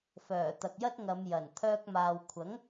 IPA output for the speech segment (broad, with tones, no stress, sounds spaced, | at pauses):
f œː˨˩ t̪ ɐ˨ k̚ j ɐ˥ t̚ ŋ ɐ˨˧ m j ɐ˨˩ n t̪ʰ œː˧ k̚ m aː˨ w kʷʰ ɐ˨˥ ŋ